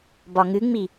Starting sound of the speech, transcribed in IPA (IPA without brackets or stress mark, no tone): b